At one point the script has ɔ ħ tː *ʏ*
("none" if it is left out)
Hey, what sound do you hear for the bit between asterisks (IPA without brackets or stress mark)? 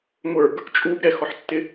ɪ